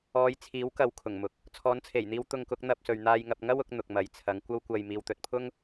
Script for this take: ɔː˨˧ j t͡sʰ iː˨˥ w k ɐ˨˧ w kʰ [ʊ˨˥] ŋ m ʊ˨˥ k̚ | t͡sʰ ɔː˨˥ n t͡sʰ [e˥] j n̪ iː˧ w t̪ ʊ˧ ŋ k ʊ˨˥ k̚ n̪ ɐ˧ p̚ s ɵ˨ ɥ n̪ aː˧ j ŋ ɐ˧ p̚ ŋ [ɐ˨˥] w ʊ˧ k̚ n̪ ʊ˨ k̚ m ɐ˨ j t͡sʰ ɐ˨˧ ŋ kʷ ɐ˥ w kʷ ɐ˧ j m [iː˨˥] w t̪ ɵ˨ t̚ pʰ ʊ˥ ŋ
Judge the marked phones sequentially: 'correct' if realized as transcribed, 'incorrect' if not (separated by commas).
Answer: incorrect, incorrect, incorrect, incorrect